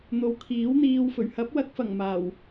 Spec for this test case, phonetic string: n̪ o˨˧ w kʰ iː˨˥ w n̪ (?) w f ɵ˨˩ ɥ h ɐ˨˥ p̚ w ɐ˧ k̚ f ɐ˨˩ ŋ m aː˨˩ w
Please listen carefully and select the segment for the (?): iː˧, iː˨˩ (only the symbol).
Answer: iː˧